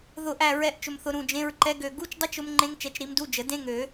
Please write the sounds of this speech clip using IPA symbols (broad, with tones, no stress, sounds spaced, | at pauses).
ð ʊ˦˨ ʔ æ˦˨ ɹ ɛ˨˦ ʔ t͡ʃ ʊ˨ m θ ʊ˨ ɾ ũ˦˨ d͡ʒ ẽ˧˥˧ ɹ ǃ ɛ˦˥ ɡ ø˦˨ ɡ u˧˥˧ t͡ʃ dˤ ʊ˦˥ t͡ʃ ʊ˦˥ m ŋ͡ǃ ẽ˦˥ ŋ t͡ʃ ɛ˨˦ t͡ʃ ɾ i˨˦ m d u˧˥˧ d͡ʒ ə˨˩˦ d ẽ˦˥ ŋ ø˨˩˦